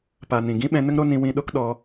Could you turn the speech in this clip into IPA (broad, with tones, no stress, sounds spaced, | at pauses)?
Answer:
p a˨ n ĩ˨ ɡ ĩ˦ ɓ ɛ̃˧ n ə˦ ŋ ɾ o˦ n ĩ˧ w ĩ˧ ɗ o˦ k ɗ ɔ˧